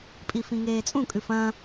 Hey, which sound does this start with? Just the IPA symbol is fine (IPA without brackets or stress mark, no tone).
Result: pʼ